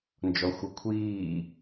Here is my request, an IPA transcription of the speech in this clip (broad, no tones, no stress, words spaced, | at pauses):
nd͡ʒɔxʷɤkʷʰiː